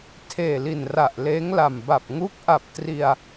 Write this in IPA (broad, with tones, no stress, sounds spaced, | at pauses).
tʰ eː˨˩ l i˨˩ n r a˨˩ ʔ l eː˦˥ ŋ l a˨˩ m b a˨˩ p̚ ŋ u˦˥ k̚ ʔ a˨˩ p̚ t r i˧ a̯